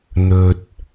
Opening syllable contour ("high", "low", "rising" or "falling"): low